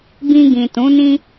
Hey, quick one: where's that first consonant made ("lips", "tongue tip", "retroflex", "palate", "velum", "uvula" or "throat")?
lips